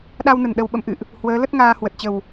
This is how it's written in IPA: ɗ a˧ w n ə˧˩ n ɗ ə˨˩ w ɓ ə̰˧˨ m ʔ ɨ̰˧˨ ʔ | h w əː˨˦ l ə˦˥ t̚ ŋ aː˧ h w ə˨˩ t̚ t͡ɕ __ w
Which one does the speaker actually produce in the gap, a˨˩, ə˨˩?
ə˨˩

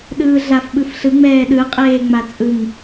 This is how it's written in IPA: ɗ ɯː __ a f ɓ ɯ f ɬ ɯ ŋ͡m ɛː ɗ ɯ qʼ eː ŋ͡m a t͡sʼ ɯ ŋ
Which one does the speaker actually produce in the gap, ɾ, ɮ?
ɮ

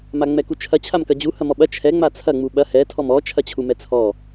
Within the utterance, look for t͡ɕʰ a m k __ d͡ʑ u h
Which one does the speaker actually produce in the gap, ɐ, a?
ɐ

